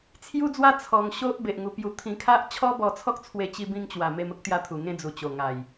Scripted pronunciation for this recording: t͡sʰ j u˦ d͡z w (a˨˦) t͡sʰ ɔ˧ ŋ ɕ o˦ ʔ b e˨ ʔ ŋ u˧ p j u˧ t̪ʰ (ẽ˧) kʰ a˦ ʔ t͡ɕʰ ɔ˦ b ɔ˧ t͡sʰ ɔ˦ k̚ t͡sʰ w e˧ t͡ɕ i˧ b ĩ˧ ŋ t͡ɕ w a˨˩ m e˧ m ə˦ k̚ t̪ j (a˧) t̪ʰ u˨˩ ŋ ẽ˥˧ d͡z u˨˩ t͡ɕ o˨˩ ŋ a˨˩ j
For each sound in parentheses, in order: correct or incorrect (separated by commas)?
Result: incorrect, incorrect, correct